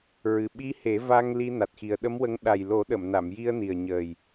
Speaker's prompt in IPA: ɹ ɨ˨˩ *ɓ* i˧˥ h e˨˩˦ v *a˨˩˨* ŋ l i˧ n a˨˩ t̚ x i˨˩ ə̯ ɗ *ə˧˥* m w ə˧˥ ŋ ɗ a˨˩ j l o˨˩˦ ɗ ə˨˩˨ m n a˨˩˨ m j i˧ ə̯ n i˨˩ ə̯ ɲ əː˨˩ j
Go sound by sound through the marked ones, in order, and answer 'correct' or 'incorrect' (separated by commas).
correct, incorrect, correct